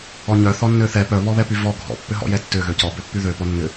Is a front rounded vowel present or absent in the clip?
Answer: present